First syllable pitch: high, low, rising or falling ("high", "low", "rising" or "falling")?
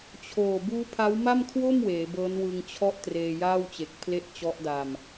low